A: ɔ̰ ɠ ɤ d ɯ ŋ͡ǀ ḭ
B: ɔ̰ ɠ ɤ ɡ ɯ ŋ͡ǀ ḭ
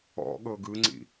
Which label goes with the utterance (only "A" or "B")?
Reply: B